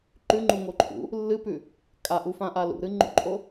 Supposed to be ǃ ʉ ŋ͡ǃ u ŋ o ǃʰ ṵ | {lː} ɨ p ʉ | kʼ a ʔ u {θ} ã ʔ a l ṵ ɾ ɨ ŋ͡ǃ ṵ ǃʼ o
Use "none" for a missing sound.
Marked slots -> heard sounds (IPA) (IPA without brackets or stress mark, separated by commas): lː, f